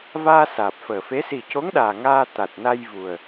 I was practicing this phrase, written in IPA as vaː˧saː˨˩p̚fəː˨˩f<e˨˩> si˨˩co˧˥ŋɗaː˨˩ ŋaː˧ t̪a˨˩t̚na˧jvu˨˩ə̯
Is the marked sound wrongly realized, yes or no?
yes